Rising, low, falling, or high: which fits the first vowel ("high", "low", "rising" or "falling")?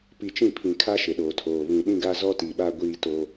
low